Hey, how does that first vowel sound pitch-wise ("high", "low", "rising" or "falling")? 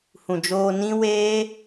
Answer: low